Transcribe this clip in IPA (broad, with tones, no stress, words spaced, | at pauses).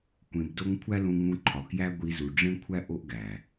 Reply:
kʷẽ˧bdo˦ŋ kʷʰæ˦lũ˧ŋũ˧ǃʰɒ˨ kjæ˦ɡʷi˧zu˨ ɖ͡ʐẽ˦kʷʰæ˦ ʔo˦ʔɡæ˨